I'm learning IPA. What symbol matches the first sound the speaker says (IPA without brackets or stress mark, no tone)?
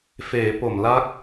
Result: f